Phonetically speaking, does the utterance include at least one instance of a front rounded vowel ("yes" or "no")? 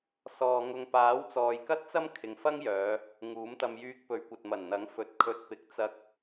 yes